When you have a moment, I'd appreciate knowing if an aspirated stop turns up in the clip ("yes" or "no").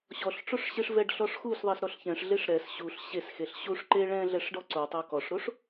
no